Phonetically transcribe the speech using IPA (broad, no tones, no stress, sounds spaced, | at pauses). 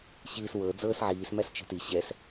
ɕ iː s w ɤ d͡z ɤː s ʕ iː s m æ s t͡ʃ ɛ̤ t i ɕ ɛ s